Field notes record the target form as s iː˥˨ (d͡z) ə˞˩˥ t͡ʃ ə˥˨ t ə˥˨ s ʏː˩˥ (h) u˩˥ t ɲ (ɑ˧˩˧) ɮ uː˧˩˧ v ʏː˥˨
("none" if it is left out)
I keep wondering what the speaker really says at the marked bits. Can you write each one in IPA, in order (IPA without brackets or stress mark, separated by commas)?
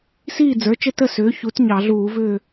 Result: d͡z, ç, ɑ˧˩˧